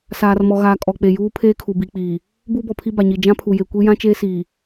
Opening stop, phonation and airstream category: ejective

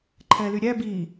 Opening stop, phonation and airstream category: click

